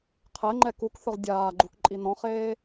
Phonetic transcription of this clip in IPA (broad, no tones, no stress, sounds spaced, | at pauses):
qʰ ɛ ŋ͡ǃ ɛ k u k θ ʊ ʁ dʲ aː ɡ͡ǃ u k ǃʼ i n ɔ̃ χ eː